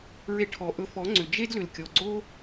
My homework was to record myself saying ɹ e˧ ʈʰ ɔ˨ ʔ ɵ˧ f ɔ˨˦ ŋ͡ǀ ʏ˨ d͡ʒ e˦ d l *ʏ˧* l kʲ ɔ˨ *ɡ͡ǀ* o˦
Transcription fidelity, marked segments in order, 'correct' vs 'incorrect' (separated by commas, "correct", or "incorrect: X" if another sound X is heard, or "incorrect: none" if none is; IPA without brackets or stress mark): incorrect: ʏ˨, correct